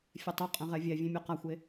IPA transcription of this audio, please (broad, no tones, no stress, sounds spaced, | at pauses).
fʲ ɛ tˤ o qʼ ɛ̃ ʁ ɛ vʲ ɛ vʲ ẽ mʲ ɔ q a xʷ e